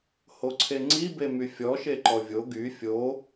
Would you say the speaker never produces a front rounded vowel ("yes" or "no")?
no